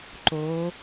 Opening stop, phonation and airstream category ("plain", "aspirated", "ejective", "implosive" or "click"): click